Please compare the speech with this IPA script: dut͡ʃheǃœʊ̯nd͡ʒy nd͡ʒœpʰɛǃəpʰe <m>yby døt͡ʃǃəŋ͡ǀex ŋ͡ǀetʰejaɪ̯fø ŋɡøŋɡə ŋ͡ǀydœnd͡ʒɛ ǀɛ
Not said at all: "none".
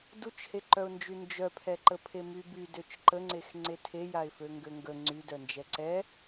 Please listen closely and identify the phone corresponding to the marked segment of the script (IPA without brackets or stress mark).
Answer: m